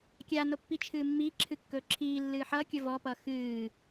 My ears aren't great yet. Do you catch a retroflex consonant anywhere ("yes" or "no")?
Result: no